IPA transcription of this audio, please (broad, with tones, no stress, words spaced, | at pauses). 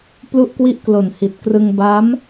plu˥˩ʔkwi˥˩ʔklo˨˩n hi˨˩t̚ krɯ˧ŋba˦˥m